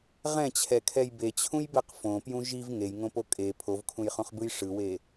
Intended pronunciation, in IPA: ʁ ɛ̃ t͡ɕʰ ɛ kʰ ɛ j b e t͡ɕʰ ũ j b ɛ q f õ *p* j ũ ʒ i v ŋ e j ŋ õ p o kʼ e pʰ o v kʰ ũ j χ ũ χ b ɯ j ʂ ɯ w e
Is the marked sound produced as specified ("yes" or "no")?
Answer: yes